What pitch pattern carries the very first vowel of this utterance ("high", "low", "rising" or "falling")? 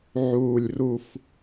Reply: low